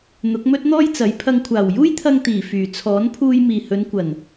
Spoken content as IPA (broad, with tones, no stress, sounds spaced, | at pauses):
n̪ ʊ˨˥ k̚ m ɵ˥ t̚ n̪ ɔː˥ j t͡s ɐ˨˥ j pʰ ɐ˨ ŋ kʷʰ aː˨˩ w j uː˥ j t̪ʰ ɐ˧ ŋ t̪ iː˨˩ f yː˨˩ t͡sʰ ɔː˨˥ n pʰ uː˧ j m iː˨ h ɵ˨˧ n kʷ ɐ˨˩ n